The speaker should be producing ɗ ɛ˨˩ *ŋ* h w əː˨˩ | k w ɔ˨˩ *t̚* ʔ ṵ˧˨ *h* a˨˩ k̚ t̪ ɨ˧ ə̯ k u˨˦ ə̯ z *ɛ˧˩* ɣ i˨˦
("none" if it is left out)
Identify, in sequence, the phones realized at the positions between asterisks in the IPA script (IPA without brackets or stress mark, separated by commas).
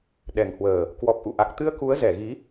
ŋ, p̚, ʔ, ɛ˧˩